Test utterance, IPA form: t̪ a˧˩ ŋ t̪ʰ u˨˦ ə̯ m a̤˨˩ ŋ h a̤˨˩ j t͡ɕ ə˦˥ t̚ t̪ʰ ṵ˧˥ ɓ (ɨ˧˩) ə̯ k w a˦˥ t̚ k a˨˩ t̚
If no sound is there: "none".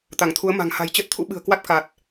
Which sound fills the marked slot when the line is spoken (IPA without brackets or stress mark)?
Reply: ɨ̤˨˩